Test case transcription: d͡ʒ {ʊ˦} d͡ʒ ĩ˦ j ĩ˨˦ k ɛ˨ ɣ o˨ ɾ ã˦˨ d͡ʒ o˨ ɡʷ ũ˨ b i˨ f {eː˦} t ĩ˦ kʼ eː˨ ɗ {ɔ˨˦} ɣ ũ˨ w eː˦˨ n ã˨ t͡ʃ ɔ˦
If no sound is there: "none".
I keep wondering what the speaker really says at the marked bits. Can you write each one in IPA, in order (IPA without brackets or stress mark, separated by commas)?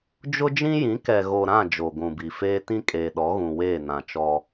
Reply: ʊ˦, eː˦, ɔ˨˦